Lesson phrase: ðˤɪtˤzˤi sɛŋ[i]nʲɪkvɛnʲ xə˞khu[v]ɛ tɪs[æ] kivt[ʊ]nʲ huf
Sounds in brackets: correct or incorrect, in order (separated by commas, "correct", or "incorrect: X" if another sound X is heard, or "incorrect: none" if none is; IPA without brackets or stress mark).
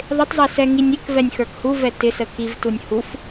correct, correct, incorrect: ə, incorrect: u